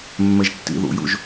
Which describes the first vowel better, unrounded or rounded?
unrounded